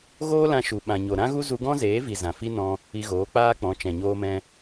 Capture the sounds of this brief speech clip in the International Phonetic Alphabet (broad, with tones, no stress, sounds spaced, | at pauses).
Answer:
ɣ oː˦ l ã˧ ʃ u˨ ɓ ã˨ ɲ o˨ ɾ ã˦ ɣ u˦ z u˧ ɡ ɔ̃˦ z eː˨˦ v i˨ z ã˨ f i˦ n ɔ̃˧ | i˧ ɣ oː˨˦ k͡p aː˦ k͡p ɔ̃˨˦ t͡ʃ ɛ̃˨ ɲ oː˧ m ɛ̃˧